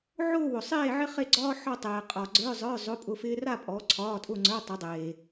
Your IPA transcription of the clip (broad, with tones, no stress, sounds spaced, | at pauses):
ʕ ʊː˥˧ w ʊ˨ sˤ eː˥˧ ʕ ɪ˥ χ e˥˧ ɡ͡ǀ ɒː˥ ħ ɒ˥˧ tˤ eː˨ qʼ ɒ˨ ɡ͡ǀ ə˞˧˥˧ zˤ ə˞˧˥˧ zˤ ʊ˧˥˧ pʼ ʊ˧˥˧ f ɪː˥ r a˥˧ pʼ ɔ˨˦ ǀʰ ɒː˧˥˧ tʼ ʊ˥˧ ŋ͡ǀ ə˞˧˥˧ tˤ ɪ˨˦ dˤ eː˨